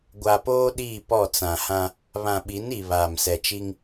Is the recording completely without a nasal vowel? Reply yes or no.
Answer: no